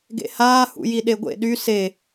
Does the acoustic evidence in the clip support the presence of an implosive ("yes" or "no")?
yes